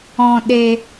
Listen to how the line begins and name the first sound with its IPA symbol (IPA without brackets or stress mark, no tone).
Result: ɔ̃